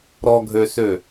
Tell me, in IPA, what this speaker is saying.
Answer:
ɾ ɔ ɡʱ ø s ø

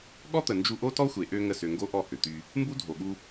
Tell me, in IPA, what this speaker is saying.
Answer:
ɠ ɔ˦ t̪ ə˨ n d͡ʒ u˧ ʔ o˦ t ɔ˦ xʷ e˨ ʔ ø˧ ŋ ə˦˨ s ø˧ ŋ ɡ o˦ ʔ ɔ˦˨ h ø˨ t̪ y˧ | m b u˦ dʱ o˨ ɠ u˧

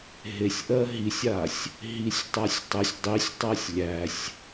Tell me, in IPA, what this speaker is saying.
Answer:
ɦ e sʲ ʔ ɜ ɦ i sʲ a sʲ | ɦ i sʲ tˤ a sʲ tˤ e sʲ dˤ i sʲ tˤ ɜ sʲ lʲ æ sʲ

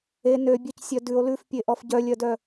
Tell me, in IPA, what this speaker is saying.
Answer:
e n ø bʲ œ c sʲ œ d ʉ o̯ l ʉ f pʲ e ʔ ɔ f ɟ œ lʲ œ d œ

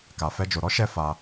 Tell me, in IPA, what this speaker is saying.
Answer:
k a˧ f ɛ˦ d͡ʒ o˧ ɾ ɔ˦ ʃ ɛ˧ f a˧

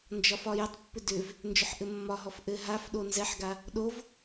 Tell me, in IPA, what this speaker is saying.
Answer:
n d͡ʒ ɒ f ɒ j ə tˤ pː ʏ d ʏ v | n d͡ʒ ʏ ħ ʔ ɘ mː ɒ ɦ ɔ f ʔ ɘ ɦ a f ɗ o n z ɛ ħ ɡ a | ɗ o v

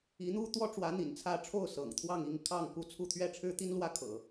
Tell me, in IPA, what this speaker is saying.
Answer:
i˧˥ n̪ u˥ t̪ w ɔ˥ ʈ͡ʂ w ä˧˥ n̪ ḭ˨˩ n t͡sʰ ä˥˧ ʈ͡ʂʰ o˥˩ ʊ̯ s ɤ̰˨˩ ŋ t̪ʰ w ɑ˥˧ ŋ i˥˧ ŋ kʰ ɑ˥˧ ŋ k u˥˧ t͡sʰ u˥˧ t̪ʰ ɥ ɛ˥˩ ʈ͡ʂʰ ɻ̩˥ t̪ i˥ n l w ä˥ kʰ ɤ̰˨˩˦

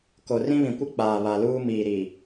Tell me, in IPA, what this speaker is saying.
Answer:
k o˨ r ĩ˦ β ĩ˨ kʷ ɪ˦ k͡p aː˨ β a˨ l uː˦ m iː˨ ɾ i˨

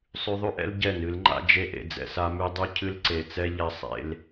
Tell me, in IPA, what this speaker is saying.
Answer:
sˤ ʉ˧ ðˤ ʉ˦ ʔ ɛ̰˦ l ɟ ɛ˦˨ n ɨ˨˦ l ŋ͡ǃ a̰˦ d͡ʒ e˧ ʔ ḛ˨ d͡z ɛ̰˨ s a˧ m ʉ˧ dˤ ʉ˦ cʰ ɨ˦ l ǀ e˨ t͡s ɛ˦ ʎ a˧ sˤ ḛ˧ l

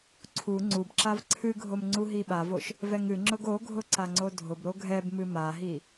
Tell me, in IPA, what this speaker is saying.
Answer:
ǀʰ u ŋ͡ǀ u b ǁ a v ǀʰ ɨ ɡʱ o m ŋ͡ǀ u ɦ i ɓ a v o ʃ | v ɛ ŋ ɨ ŋ͡ǁ ʊ ɡ o ɡʱ ʊ ǀ a ŋ͡ǀ o dʱ ʊ b ɾ o ɡʱ ɛ b m ɨ m a ɦ i

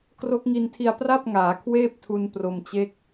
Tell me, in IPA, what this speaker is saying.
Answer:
k r o˦˥ k̚ ŋ i˧ n tʰ i˧ a̯ p r a˥˩ p̚ ŋ aː˩˦ kʰ w eː˥˩ p̚ tʰ u˧ n p r o˧ m t͡ɕ e˥˩ k̚

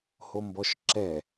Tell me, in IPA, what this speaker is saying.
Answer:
h o m b ɔ ʃ ǁ ɛ

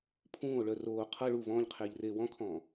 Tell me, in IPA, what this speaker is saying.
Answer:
pʰ ũː o̯ ɭ œ r oː qʰ ɤ ɭ u v ɔ̃ː ʎ qʰ eː ʎ r eː w ɔ̃ kʰ ɔ̃ː

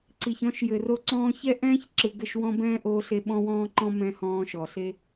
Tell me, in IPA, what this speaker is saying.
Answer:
ǀ i˨ ç ɔ̃˨˦ ʃ j ɘ˨ r o˧ ǀ ɔ̃ː˧ ç ɛ˦ ʔ ɛ̃ː˦ ç ǁ ɯ˨ ɡ ɘ˦˨ ʃ w ɔ̃˧ b ɛ̃ː˦ ʔ oː˧ ɬ e˧ ɓ ɔ̃˦ w ɔ̃ː˦ ǃ ɔ̃˦ m ɛ̃˧ h ɔ̃ː˧ ʃ ɔ˨ ɬ e˦

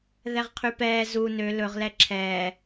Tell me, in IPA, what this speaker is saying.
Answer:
ð ɛ ʁ qʰ y p ɛː z u n ø l ɵ ʁ l ɛ ǁʰ ɛː

